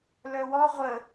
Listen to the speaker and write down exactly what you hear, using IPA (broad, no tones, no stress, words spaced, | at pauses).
lœwɔ ʁʷə